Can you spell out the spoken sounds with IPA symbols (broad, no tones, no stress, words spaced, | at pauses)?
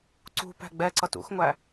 ǀṳ pæ̤ɡ͡bɛǀʌt ṵxŋʷæ